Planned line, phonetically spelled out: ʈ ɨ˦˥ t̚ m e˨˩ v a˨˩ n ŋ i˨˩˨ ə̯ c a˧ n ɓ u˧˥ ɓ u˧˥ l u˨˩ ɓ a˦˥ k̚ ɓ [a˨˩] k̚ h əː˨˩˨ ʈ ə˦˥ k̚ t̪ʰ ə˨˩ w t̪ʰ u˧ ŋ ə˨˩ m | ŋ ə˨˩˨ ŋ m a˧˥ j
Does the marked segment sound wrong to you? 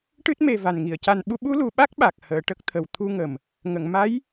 no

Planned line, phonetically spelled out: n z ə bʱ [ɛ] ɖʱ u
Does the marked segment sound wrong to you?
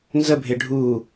yes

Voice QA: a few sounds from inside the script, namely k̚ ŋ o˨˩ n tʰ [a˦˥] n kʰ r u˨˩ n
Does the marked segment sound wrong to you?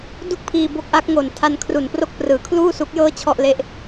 yes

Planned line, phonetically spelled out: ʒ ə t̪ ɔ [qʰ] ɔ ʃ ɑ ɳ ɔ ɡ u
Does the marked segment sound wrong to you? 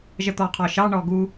no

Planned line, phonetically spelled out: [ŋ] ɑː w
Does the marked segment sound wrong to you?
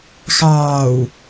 yes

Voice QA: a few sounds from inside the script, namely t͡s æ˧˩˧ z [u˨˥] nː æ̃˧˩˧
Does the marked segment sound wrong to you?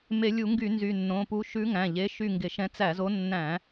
yes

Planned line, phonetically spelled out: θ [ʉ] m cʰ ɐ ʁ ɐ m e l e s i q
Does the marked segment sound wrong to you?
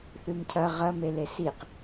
no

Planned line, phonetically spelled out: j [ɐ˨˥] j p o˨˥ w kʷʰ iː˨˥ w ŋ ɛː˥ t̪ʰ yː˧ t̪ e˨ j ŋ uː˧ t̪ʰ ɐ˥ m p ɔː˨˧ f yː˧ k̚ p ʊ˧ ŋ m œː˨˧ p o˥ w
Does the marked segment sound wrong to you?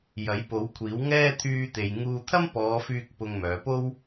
no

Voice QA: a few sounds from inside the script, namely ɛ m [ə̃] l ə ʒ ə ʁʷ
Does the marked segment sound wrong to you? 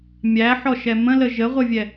no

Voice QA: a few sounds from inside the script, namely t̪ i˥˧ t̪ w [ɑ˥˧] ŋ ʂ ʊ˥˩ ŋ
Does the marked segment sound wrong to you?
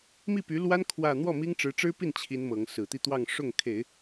no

